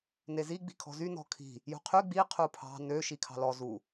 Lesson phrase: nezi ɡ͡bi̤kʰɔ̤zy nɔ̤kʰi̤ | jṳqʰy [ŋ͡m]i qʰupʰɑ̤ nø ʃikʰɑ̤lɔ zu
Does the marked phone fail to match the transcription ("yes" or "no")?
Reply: yes